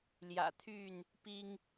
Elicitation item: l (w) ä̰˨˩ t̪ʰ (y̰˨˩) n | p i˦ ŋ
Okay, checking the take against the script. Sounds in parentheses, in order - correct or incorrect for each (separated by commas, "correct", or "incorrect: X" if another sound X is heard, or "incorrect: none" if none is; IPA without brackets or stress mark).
incorrect: j, incorrect: y˥˨